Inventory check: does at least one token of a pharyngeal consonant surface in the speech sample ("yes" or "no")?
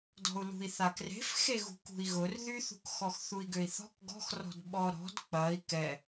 no